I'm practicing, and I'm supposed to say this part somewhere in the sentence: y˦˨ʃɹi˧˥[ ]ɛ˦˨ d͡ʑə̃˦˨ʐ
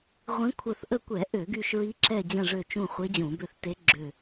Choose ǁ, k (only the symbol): ǁ